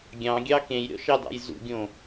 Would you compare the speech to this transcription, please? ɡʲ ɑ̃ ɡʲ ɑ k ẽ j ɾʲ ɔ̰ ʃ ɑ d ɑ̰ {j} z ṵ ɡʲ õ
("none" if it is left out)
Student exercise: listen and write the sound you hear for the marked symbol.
j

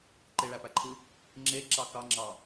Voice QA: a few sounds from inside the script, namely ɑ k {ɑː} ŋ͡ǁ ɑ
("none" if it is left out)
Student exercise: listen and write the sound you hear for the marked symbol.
ɑ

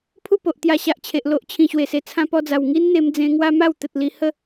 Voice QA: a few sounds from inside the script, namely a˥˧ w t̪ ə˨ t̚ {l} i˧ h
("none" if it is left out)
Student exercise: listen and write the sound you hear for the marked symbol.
l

